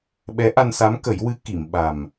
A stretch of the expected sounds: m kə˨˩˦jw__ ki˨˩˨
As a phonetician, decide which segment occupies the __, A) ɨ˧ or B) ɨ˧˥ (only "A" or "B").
B